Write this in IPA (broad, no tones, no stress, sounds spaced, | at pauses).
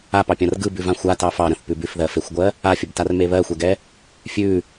a p ɑ pʲ ã r ɡ ɯ b ʉ v ã xʷ a t ɑ f ɑ ɾ ə̃ θ p ʉ b ʉ f ð ɜ f e xʷ ɡʷ ɜ | a fʲ ə b t a r m e β ɜ xʷ ɛ ɡ ɛ | fʲ ʉ